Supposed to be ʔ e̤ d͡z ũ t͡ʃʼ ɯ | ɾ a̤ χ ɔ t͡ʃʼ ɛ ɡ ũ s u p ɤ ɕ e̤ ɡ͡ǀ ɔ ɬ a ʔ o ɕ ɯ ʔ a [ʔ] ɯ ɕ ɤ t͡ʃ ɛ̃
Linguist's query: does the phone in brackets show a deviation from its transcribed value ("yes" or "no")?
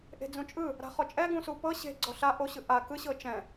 yes